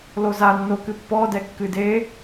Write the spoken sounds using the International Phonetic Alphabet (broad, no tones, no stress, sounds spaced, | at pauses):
l o z a nː o k ɨ pː ɔ d ɛ kː ɨ d e